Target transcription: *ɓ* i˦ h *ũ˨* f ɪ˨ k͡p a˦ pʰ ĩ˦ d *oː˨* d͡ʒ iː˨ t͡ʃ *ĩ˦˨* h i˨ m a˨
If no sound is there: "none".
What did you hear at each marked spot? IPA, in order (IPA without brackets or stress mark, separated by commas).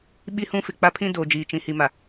ɓ, ũ˦, oː˨, ĩ˨